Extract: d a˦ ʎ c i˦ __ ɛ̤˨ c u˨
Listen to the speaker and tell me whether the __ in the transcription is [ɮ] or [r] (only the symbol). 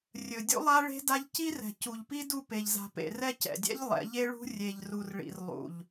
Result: r